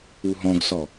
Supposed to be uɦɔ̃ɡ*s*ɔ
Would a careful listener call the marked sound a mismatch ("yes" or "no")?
no